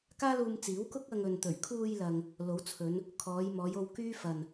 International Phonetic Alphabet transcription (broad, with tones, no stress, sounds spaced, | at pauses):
k aː˥ l uː˧ m t͡s iː˨˥ w k ʊ˥ k̚ ɐ˧ ŋ ɵ˨ n t̪ ɵ˨˩ ɥ kʰ uː˧ j l ɐ˨ ŋ | l o˨˥ w t͡sʰ ɵ˨˧ n | kʰ ɔː˨˧ j m ɔː˨˧ j o˧ w k yː˥ f ɐ˧ n